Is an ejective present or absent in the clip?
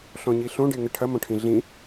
absent